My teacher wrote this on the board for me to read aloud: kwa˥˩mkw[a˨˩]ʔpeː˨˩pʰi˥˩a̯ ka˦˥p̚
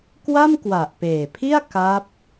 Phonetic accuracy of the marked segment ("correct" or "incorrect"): correct